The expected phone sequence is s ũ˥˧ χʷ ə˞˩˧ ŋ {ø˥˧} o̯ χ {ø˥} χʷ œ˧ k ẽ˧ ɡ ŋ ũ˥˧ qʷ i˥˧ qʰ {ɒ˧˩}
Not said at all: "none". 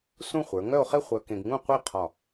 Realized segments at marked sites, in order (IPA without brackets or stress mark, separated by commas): œ˥˧, e˥, ɒ˧˩